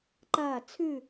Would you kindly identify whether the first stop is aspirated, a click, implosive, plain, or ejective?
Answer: click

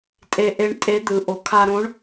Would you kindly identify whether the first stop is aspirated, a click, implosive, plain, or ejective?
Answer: ejective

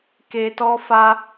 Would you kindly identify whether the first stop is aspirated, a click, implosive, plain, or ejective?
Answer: plain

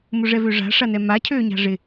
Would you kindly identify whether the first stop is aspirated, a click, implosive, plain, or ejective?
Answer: aspirated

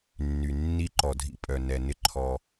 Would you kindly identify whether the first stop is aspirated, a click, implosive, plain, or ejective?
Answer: click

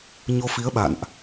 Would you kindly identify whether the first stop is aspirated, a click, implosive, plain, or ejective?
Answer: implosive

